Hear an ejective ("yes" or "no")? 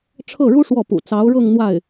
no